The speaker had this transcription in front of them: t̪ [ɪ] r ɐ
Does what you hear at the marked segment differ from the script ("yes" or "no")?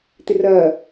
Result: no